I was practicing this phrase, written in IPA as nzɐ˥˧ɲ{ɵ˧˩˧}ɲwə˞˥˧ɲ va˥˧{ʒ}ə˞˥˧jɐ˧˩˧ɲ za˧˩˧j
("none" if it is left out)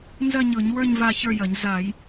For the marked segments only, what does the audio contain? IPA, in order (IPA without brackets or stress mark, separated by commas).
ɤ˧˩˧, ç